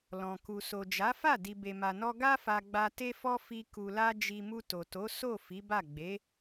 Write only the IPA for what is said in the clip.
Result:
l ɔ̃˨ k u˨ s o˨ d͡ʒ a˨˦ f a˦˨ d i˨ b e˨ m a˨ n ɔ˧ ɡ a˦ f a˧ ɡ͡b a˧ t e˦ f ɔ˦ f i˧ k u˨ l a˧ d͡ʒ i˧ m u˧ t o˨ t o˨˦ s o˦˨ f i˨˦ b a˦˨ ɡ͡b e˨˦

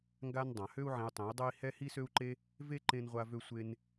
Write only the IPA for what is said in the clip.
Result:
ŋ ɡ a˦ n dˤ ã˨ h ø˦ u̯ ʕ ẽ˧ u̯ tˤ ẽ˨˦ i̯ dˤ ɛ˦ i̯ h ɛ˦ h i˦ s ø˦ u̯ ǃ e˦ | v e˦ ǃ ẽ˦ n ʁʷ a˦ v ø˦ sʷ e˦ n

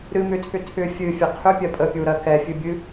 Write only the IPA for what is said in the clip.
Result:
ɾ ɨ m ʏ tʰ ʏ tʰ ʏ fʲ ɨ fʲ ə qʰ ʏ pʲ ɜ pʼ ə pʲ u ɾ ɜ k ɛ fʲ ɨ bʲ ɨ

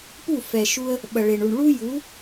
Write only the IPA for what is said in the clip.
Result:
p u˥˩ f ɛ˩ ʃ u˧ ə̯ | ɓ ɐ˩ ɭ e˩ ɳ u˩ ɳ ɭ u˥ j u˩˥

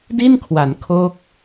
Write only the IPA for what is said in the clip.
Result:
d i˥˩ n kʰ w a˩˦ n kʰ o˥˩ k̚

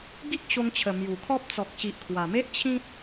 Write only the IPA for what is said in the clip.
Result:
ɡ i˦ k̚ ɕ o˧ ŋ t͡ɕʰ ə˨˩ m j u˨˩ kʰ ɔ˦ p̚ t͡s ɔ˨ k̚ ɕ i˨ ʔ kʰ w a˨˩ m e˦ ʔ t͡ɕʰ ĩ˦ t̚

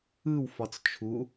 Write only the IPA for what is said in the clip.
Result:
ɯ w f ɒ t͡s t͡ʃʰ u

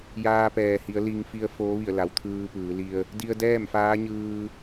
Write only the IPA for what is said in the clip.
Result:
j aː˧ p ɛː˩ h i˩˧ ə̯ l i˧ ŋ f i˧ ə̯ f oː˧˥ ʋ i˧˩ ə̯ l a˩˧ w t̪ʰ ɯː˧ p ɯː˩˧ l i˧ ə̯ | d i˧ ə̯ d ɛː˥˨ m f aː˧˥ ɲ ɯː˧

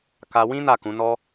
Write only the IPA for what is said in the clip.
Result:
k a˧ w ĩ˦ n a˦˨ k ũ˨˦ n ɔ˦

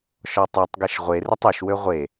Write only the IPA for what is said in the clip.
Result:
ʃ ɔ tˤ e tˤ ɡ e ʃ ʁʷ e r ɪ tˤ ø ʃ w ø ʁʷ e

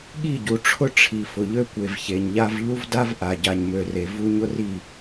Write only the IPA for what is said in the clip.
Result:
ɠ i˦˨ ɟ u˨ ʈ͡ʂʰ ʊ˦ ʈ͡ʂʰ i˨ f ʊ˨ ʎ ø˦ kʷ e˨ v ç e˨ ɲ ʎ a˦ v ʎ u˦ v d a˦ v ʔ a˨ ɟ a˨ ɲ m ø˨ r e˨ v u˦ ɲ ʊ˦ r i˦˨

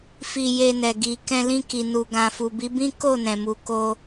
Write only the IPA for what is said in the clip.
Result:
f i˧ j e˧ n ɛ˨ ɡ i˨ k ɛ̃˧ l ĩ˧ k i˨ n u˨ ɡ ã˨ f u˨ b i˨˦ b ĩ˦ k o˦˨ n ɛ̃˨ m u˨ k o˧

